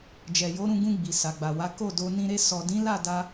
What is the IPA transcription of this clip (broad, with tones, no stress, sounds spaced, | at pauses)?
d͡ʒ ɛ˨ j o˨˦ ɾ ũ˧ ɡ ũ˧ ɡ͡b i˨ s a˨ ɡ͡b a˨ w a˨˦ k o˦˨ d o˧ n ĩ˧ ɾ e˧ s ɔ˨ d ĩ˨˦ l a˦˨ d a˧